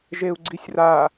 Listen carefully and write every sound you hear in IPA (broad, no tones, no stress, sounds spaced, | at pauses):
ʒ e u̯ ɡ͡ǀ i sʲ r a